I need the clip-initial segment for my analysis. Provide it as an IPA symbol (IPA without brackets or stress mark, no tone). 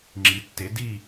ŋ͡ǁ